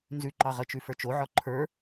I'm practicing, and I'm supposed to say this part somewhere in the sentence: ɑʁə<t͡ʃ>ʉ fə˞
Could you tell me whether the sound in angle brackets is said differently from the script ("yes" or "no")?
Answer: no